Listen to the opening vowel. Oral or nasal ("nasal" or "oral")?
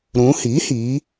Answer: nasal